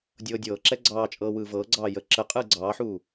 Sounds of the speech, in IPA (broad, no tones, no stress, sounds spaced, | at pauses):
dʲ ɤː dʲ ɤː ǁ ɛ ɡ͡ǀ ɑː t͡ʃʼ ɤː w ɯː v ɤː ɡ͡ǀ ɑː j ə ǁ ə qʼ ɯː ɡ͡ǀ ɑː ħ uː